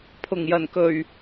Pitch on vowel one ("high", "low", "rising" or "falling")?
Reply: low